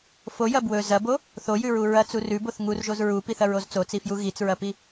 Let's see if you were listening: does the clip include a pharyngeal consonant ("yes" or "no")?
no